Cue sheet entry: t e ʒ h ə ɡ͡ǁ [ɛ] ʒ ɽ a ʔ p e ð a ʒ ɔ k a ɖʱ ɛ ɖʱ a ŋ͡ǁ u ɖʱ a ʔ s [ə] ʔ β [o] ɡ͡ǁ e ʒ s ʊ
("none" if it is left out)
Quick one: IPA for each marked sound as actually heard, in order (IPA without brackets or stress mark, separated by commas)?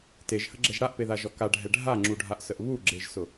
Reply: ɛ, ə, u